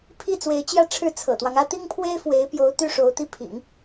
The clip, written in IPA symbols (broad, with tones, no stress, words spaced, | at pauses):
pʰi˥˩t͡swe˧˥ɪ̯t͡ɕjä˥˧ʈ͡ʂʰɻ̩˥˩ t͡sʰɤ̰˨˩t̪wɑ˦ŋä˥ t̪i˥ŋpʰwe˥ɪ̯fwe˧˥ɪ̯pjo˧˥ʊ̯ t̪y˥ʂo˧˥ʊ̯t̪i˥˩ pʰḭ˨˩˦ŋ